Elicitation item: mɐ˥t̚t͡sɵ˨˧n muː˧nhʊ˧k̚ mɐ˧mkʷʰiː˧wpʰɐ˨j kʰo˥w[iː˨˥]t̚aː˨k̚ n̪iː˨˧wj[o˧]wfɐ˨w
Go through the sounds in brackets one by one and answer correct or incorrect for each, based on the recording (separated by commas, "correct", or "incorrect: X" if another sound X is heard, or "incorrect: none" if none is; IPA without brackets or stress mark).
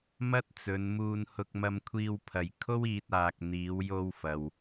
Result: incorrect: iː˧, correct